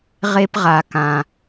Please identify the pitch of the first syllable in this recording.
high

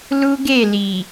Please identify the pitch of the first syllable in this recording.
high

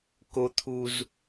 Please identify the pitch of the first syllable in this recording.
high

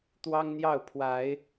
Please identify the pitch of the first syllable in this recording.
high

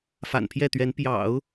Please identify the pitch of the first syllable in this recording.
low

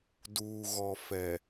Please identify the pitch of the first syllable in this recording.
low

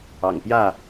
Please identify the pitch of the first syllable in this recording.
low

